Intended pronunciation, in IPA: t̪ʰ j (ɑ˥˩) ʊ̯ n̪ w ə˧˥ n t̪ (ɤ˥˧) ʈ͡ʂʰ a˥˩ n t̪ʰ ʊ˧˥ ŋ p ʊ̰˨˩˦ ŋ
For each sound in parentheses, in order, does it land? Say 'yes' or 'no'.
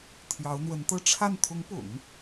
no, yes

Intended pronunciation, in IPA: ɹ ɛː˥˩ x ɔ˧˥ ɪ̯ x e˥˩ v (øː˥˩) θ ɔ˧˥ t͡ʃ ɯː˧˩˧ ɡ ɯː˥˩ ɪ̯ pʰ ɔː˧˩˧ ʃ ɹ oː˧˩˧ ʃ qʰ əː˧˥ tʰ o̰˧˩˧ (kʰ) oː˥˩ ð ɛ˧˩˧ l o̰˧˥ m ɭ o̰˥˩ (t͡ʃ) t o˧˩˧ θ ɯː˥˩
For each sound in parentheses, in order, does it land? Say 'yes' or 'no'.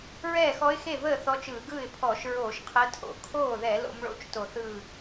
no, yes, yes

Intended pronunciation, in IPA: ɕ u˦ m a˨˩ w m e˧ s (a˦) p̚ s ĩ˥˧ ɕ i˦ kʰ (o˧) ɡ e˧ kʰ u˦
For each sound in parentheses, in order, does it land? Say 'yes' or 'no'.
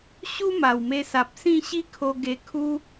no, yes

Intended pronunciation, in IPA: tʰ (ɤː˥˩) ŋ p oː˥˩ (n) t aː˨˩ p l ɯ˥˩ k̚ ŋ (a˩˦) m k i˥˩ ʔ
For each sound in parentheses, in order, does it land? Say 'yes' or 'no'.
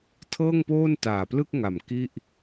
yes, yes, no

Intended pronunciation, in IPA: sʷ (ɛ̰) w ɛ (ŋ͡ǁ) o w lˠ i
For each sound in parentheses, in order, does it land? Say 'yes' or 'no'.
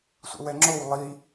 yes, yes

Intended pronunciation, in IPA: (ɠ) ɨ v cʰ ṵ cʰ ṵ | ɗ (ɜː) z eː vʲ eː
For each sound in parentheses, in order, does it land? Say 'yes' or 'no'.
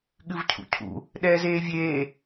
yes, no

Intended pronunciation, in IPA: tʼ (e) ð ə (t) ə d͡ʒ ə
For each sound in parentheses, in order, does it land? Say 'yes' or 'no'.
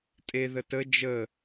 yes, yes

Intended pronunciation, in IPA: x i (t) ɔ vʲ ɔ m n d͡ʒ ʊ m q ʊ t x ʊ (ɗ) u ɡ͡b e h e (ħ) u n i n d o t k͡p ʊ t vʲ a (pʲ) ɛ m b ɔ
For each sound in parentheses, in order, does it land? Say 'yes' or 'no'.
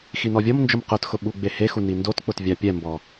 no, no, no, yes

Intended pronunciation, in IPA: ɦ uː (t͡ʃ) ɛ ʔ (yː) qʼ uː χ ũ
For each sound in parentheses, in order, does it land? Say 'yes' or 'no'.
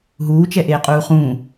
yes, no

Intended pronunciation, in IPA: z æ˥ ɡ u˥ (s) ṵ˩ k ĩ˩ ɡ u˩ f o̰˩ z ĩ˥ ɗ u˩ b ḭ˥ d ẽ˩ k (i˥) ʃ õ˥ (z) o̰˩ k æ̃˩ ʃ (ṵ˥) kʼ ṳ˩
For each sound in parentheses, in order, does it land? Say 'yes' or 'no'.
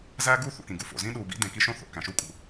no, yes, no, no

